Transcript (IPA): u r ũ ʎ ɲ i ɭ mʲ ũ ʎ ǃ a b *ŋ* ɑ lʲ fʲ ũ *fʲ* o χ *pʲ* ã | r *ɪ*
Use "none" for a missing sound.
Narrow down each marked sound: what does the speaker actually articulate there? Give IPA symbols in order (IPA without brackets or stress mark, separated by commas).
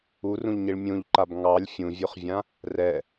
ŋ, vʲ, vʲ, ɛ